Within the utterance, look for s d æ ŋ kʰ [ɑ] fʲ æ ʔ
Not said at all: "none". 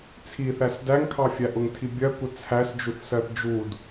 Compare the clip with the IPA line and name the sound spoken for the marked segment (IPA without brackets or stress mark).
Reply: ɑ